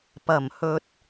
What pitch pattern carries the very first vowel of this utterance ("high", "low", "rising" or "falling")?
low